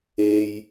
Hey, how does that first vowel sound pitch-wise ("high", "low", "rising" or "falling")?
low